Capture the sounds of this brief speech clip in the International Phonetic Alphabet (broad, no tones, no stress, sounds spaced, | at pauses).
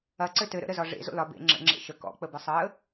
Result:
ɐ ǀ ɘ t ɘ ɾ ə̰ ɾ ə z ɒ ʐ ḛ z o̰ l ɒ b ḛ ŋ͡ǁ ə̰ ŋ͡ǁ ḛ ʃ ə k ɔ̰ k͡p ə b ɘ sˤ əː